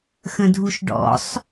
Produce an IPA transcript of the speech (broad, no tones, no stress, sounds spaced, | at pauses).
x ə̃ dʱ u ʃ ɖ ɔ̰ sˤ